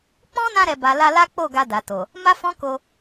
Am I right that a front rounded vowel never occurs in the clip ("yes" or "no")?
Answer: yes